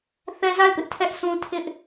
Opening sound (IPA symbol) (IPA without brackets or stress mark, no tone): θ